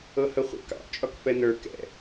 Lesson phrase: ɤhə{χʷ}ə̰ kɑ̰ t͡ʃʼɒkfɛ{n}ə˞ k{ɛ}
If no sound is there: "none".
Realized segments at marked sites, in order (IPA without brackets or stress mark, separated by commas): χʷ, n, ɛ̰